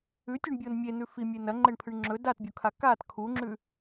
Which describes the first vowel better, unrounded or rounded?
rounded